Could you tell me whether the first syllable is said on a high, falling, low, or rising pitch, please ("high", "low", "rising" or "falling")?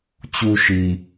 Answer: low